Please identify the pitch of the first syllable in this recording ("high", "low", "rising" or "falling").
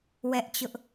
high